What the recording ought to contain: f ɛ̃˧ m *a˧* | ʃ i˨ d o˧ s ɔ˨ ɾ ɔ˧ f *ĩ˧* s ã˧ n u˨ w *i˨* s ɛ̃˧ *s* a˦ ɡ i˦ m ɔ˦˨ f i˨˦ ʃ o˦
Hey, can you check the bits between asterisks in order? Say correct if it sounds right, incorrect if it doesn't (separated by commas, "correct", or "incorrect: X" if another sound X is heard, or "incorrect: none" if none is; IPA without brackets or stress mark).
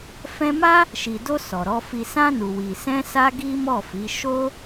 incorrect: a˦, incorrect: i˧, correct, correct